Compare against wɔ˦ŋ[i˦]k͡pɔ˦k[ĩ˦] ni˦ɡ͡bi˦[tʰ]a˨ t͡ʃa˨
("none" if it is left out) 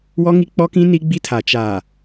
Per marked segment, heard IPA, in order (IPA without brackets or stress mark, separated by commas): i˦, ĩ˦, tʰ